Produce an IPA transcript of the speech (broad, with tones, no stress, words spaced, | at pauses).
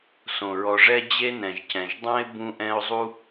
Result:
sõ˩ɹɔ˨ʐɛ˥ d͡ʑe˦nɛ̃˩ʒcɛ̃˩ʒ dˤɛ̃˥ɪ̯ bũ˦ʔɛ̃˦ʊ̯zˤu˥